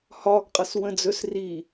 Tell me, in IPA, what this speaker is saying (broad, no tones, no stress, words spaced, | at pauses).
hɒɡ qʼʌswə̃ d͡zɵs ri